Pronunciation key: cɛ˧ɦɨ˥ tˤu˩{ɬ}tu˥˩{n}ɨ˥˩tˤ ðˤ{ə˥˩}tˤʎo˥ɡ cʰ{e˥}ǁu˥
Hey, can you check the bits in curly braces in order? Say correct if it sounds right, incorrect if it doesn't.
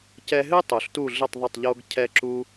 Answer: correct, incorrect: ɮ, correct, incorrect: ɛ˥

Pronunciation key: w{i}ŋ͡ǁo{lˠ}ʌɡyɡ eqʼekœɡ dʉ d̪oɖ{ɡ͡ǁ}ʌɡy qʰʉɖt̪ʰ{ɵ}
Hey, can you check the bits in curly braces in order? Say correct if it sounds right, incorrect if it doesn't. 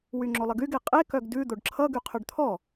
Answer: incorrect: y, correct, incorrect: ǁʰ, incorrect: ɔ

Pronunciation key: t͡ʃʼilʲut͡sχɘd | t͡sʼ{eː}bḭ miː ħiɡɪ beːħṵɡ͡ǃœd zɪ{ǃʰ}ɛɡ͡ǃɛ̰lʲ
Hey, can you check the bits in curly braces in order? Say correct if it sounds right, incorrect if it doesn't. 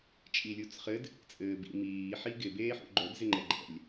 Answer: incorrect: ɘː, incorrect: ŋ͡ǃ

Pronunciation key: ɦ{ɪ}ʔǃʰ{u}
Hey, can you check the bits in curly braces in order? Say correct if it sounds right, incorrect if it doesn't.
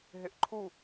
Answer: correct, correct

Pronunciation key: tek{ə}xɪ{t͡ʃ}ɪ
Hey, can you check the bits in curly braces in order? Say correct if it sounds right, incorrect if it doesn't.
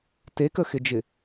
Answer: correct, incorrect: d͡ʒ

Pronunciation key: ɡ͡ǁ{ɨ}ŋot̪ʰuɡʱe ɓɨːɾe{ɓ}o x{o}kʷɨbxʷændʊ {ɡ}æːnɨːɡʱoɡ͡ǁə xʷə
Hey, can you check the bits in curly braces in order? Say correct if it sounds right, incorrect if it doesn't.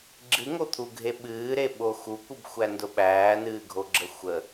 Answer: correct, correct, incorrect: u, incorrect: ɓ

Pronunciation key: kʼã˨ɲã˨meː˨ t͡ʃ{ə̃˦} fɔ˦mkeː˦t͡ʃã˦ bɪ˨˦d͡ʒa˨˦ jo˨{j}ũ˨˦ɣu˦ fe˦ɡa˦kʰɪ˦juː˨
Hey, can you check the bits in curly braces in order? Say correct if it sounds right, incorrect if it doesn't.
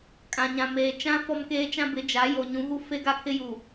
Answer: incorrect: ã˦, incorrect: ɲ

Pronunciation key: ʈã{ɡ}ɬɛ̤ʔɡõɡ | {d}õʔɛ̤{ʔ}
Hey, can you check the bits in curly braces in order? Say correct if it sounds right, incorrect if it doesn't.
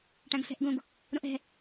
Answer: correct, incorrect: ɾ, incorrect: none

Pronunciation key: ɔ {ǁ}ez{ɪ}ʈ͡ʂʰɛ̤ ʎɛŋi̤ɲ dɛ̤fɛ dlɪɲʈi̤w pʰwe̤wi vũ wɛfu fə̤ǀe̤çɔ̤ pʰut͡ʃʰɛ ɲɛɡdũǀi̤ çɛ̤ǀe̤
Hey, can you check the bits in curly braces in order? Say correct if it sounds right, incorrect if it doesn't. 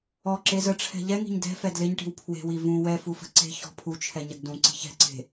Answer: correct, incorrect: ə

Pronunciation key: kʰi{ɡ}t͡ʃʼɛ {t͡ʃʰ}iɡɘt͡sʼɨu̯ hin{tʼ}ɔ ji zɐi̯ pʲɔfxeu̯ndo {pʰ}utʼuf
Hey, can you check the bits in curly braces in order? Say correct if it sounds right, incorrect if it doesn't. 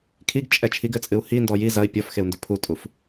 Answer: correct, correct, incorrect: d, correct

